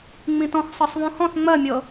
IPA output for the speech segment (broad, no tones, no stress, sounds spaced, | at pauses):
ŋ͡m ĩ t ɔ̃ x sˤ ɤ sˤ β ũ h ɔ̃ θ ŋ͡m ɜ mʲ ɤ